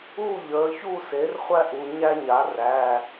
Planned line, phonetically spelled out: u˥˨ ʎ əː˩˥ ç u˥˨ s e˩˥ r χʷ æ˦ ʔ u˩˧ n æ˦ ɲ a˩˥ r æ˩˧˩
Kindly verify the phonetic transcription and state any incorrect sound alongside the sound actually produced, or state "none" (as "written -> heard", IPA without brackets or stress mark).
n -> ɲ